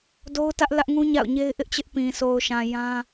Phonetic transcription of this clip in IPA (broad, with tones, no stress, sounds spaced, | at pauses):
d o˦ ʊ̯ t ä˦ ʔ l ä˦ ʔ ŋ ũ˦ ɲ a̰˦˨ ʊ̯ ɲ e˦ ɪ̯ ʔ ɪ˦ ʔ t͡ɕ ɪ˦ ʔ p ĩ˨ sʰ o˨ ʊ̯ ʃ ã˨ j ã˦